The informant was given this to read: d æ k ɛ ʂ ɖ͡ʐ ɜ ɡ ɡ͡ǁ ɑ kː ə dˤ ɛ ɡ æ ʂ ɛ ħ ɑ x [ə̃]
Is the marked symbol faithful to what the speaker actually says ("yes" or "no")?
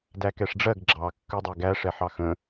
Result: yes